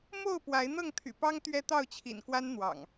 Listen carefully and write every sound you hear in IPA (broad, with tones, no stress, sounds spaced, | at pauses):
m o˥˨ ʊ̯ p w a˨˦ ɪ̯ n̪ ɤ˥˨ ŋ t̪ʰ y̰˨˩ p ɑ˦ ŋ t̪ ɥ ɛ˦ t̪ ɑ˥˨ ʊ̯ t͡ɕʰ ḭ˨˩ n k w a˦ n n̪ w ɑ̰˨˩ ŋ